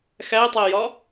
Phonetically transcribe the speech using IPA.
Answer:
x æ tˤ e j ɒ

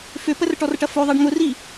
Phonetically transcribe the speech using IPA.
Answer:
f ʏ p ə r ʈ ɔ r ʈ ɐ f o ðˤ e ɖ ŋ ʊ r i

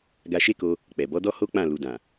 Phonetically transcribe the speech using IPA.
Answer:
ɡ a˧ ʃ e˦ k o˧ | k͡p ɛ˨ b ɔ˨˦ d ɔ˦ h o˦ k͡p ã˦˨ l u˨ d ã˨

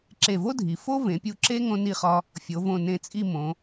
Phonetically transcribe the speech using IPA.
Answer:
ǁ e˧˩ v o˥ dʱ i˩˧ f o˥ v ẽ˩˧ pʲ u˧ ǁ e˥ ŋ õ˥ n i˥˧ χ ɒ˥ | fʲ o˩˧ v õ˧˩ n ẽ˧ t͡sʼ i˥˧ m õ˩˧

